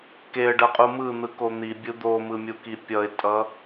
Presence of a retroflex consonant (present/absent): present